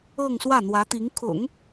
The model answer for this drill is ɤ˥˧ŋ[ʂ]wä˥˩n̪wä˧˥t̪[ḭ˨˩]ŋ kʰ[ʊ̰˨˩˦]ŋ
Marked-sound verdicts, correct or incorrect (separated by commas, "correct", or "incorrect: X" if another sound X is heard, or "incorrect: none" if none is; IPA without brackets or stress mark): incorrect: s, incorrect: i˧˥, correct